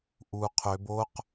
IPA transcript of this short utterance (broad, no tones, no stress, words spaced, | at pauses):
ʔu qʰøb oq